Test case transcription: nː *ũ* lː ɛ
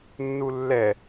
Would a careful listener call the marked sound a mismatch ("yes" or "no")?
yes